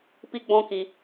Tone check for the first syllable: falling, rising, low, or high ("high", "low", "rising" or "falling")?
high